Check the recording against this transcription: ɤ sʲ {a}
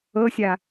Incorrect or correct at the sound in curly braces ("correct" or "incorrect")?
correct